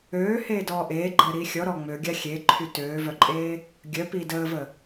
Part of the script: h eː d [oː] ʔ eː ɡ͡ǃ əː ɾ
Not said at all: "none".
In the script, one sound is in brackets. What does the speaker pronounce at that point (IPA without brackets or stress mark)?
ɔː